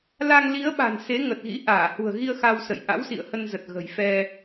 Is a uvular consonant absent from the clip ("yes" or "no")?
yes